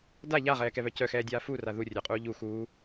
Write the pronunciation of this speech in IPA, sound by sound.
d a ʎ a ʁ ɛː k ɛ β œ c œ x ɛː dʲ aː f u r a ð u rʲ œ qʼ uː ʎ u x uː

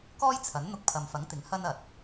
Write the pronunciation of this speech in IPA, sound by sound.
k ɔː˥ j t͡sʰ ɐ˨˥ n n̪ ʊ˧ k̚ pʰ ɐ˨ m f ɐ˨˥ ŋ t̪ ɪ˨˥ ŋ h ɐ˥ n ɐ˨ t̚

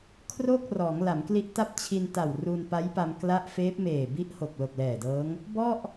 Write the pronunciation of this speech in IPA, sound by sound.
kʰ r oː˥˩ k̚ r ɔː˩˦ ŋ l a˩˦ m k l i˦˥ ʔ t a˥˩ p̚ t͡ɕʰ i˧ n t a˨˩ w r u˧ n p a˦˥ j p a˧ m k l a˦˥ ʔ f eː˦˥ p̚ m eː˨˩ b i˦˥ ʔ h o˨˩ k̚ l o˨˩ k̚ l ɛː˨˩ d ɤː˦˥ ŋ | b ɔ˥˩ ʔ

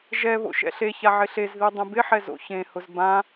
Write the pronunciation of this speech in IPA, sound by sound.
ʒ ɛ β o̰ ʃ ɛ̰ ɬ e ç a ʕ ɪ ɬ e z ð i dˤ ẽ b ɪ ħ ɛ z o̰ ç ẽ h ʊ z b ã

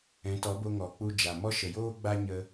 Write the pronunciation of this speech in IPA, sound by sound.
ɛ̃˨˦ t ɔ˨˦ b o˧ ŋ ɔ˨ k͡p u˧ d͡ʒ a˨ m ɔ˦ ʃ ə˨ j oː˦ ɡ͡b a˦ ɲ ə˧

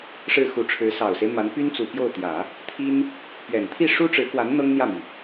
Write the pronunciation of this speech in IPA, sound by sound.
ʂ ɻ̩˥˩ x u˧˥ ʈ͡ʂʰ ɻ̩˧˥ s ɑ˨˩ ʊ̯ s e˦ ɪ̯ m a˧˥ n p y˥ n t͡s u˨˩ p j o˥˩ ʊ̯ t̪ j ä˨˩˦ | t̪ʰ i˥ n | p ɥ ɛ˨˩ n t̪ʰ i˥˩ ʂ u˥ ʈ͡ʂ ɻ̩˧˥ k w a˧˥ n n̪ ɤ˥ ŋ n̪ j ä˥˩ m i˩

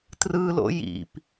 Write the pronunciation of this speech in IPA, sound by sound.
t r ɯ l o̰ j ḭ p

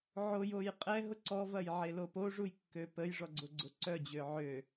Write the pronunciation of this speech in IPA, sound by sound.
ʕ o j o j qʼ ɛ ɦ ʊ ǀ ɔ v ɐ j ʕ e l o p o ʐ u j kː ø p ə j ʐ ɔ ɡ͡ǀ ʊ ɡ͡ǀ ʊ ǀ œ d͡ʑ ø ʕ ø

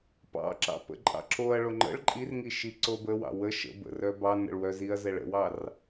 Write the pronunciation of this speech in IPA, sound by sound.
p ɑ̰ ǁ ɑ̰ p ə̰ ǃʼ ɑ̰ ǁ o ɐ̯ ɭ o ŋ͡ǃ ə̰ ɭ ǃʼ i r ŋ i ʃ i ǀ o b ə w ɑ̰ w ə ʃ ə̰ b ə̰ r œ b ɑ n ə̰ ɭ w œ z i ɐ̯ z ɛ ɭ ə̰ w ɑ r

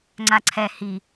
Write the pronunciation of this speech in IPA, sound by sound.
ŋ͡ǀ a ǀʰ ɛ h i

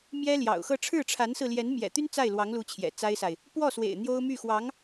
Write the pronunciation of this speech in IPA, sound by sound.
m j ɛ˥ l j ɑ̰˨˩ ʊ̯ x ɤ˥˧ ʈ͡ʂʰ ɻ̩˥˩ ʈ͡ʂʰ a˧˥ n s ɹ̩˧ l j ɛ˧˥ n m j ɛ̰˨˩ t̪ y˥ n t͡s a˥˩ ɪ̯ l w ɑ˧˥ ŋ l u˧˥ t͡ɕʰ j ɛ̰˨˩ t͡s a˥ ɪ̯ s a˨ ɪ̯ | p w ɔ˥˩ s w ḛ˨˩ ɪ̯ n̪ j o˥ ʊ̯ m y˥˩ x w ɑ˧˥ ŋ

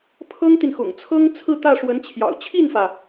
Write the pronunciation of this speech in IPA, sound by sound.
pʰ ɤ˥ ŋ t̪ i˨ n x ʊ̰˨˩ ŋ t͡sʰ ɤ˥ ŋ t͡sʰ ɹ̩˥˧ t̪ ä˥˩ ʂ w ə˧˥ n t͡ɕʰ j ɑ̰˨˩ ʊ̯ t͡ɕʰ i˥˩ n f ä˩

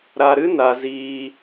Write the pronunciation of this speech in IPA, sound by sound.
ɾ a˧ ɾ ɨ˦ n a˧ z iː˧

